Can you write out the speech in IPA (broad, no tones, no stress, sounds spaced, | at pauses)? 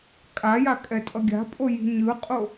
kʼ a j a kʼ ɛ tʼ ʌ ɡʲ a̤ pʼ o j i̤ ɲ ɯ qʼ o